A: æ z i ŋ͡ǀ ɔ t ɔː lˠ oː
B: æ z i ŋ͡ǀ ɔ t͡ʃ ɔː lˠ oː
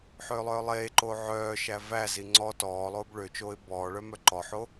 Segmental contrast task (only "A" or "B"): A